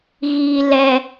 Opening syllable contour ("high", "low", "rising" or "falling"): low